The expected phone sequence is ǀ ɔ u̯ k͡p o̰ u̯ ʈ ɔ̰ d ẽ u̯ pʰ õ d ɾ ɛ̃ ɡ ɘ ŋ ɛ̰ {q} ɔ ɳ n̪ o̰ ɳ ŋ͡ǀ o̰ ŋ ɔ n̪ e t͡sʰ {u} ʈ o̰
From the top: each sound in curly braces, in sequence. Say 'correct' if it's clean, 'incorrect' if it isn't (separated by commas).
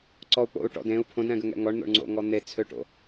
incorrect, incorrect